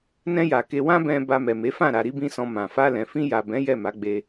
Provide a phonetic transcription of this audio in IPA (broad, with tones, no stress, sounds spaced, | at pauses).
n ɛ̃˧ j a˨ k e˧ w ã˦ b ɛ̃˧ b a˧ m ɛ˨ m e˨˦ f ã˦˨ ɾ a˧ ɾ i˦ b ĩ˦ s ɔ̃˧ m ã˨ f a˧ l ɛ̃˨ f ĩ˧ j a˨ b ɛ̃˨˦ j ɛ˦˨ m a˨˦ ɡ͡b e˧